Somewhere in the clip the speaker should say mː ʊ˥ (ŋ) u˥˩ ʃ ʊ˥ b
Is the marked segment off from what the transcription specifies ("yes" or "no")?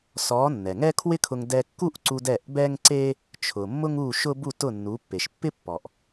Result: no